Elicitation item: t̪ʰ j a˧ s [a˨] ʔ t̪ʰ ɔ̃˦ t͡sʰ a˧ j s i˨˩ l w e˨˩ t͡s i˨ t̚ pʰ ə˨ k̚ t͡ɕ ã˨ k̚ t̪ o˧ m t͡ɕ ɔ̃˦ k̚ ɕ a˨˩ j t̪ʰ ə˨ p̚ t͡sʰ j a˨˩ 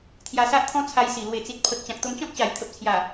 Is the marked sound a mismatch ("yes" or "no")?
yes